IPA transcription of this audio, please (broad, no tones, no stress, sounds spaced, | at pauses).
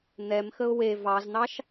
n̪ ɛ m x ə ʊ̯ w e v ɑ z n̪ ɑ ʃ